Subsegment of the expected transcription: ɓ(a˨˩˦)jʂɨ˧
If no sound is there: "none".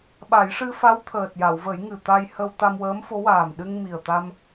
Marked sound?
a˨˩˦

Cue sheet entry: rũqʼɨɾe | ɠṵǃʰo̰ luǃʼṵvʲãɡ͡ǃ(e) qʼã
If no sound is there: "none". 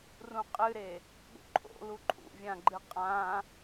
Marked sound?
ɨ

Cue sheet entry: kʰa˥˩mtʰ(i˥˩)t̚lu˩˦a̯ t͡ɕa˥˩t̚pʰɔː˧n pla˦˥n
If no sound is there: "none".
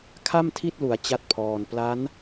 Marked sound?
i˥˩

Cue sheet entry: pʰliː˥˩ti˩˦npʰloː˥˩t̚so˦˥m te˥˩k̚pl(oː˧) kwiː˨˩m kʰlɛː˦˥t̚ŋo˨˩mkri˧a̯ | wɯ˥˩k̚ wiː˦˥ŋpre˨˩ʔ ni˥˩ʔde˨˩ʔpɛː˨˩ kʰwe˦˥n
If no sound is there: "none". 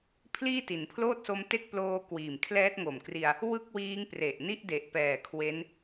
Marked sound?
oː˧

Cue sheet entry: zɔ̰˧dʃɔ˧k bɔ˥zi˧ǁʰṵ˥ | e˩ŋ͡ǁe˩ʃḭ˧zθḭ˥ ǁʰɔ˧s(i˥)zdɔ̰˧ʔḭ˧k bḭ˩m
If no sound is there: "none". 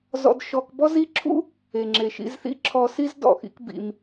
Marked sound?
i˥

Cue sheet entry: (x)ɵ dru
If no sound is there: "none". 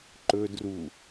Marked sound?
ǃ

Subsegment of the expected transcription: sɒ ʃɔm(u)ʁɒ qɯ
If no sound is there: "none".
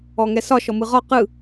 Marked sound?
ɯ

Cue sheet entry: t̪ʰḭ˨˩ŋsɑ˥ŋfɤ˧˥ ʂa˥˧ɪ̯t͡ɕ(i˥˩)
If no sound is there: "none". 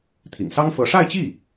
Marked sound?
i˥˩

